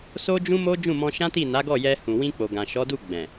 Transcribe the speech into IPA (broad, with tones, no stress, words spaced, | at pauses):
so˦d͡ʒũ˦mo˦ d͡ʒũ˦˨mɔ̃˧ʃã˦ti˦˨ na˨˦ɡɔ˦˨ jɛ˧hũ˨wĩ˧ k͡po˨ɡã˨ ʃɔ˨˦du˦˨ ɡ͡bɛ̃˨